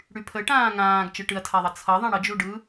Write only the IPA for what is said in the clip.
ɽypʰə ʈãːŋãːɡ t͡ʃɯʈɨɐ̯tʰaðˤʌ t͡sʰʌðˤã ɽəd͡ʒuɖɯ

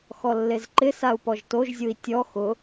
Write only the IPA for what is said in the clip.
xɔlːezǃɪsau̯ pɔʒtoʒzʲui̯ tʲɔ xʊ

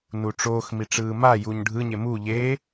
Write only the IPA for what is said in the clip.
nuʈ͡ʂoːxmi ʈ͡ʂɯːmajuɲ ɖʱɯɲe mu ʎe

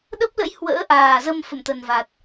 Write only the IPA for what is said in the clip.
ɗə˦˥p̚lə̰˧˥j hwə̰ː˧˥ʔaː˨˩zə˧m fə̰˧˨mt̪ə˨˩nva˨˩t̚

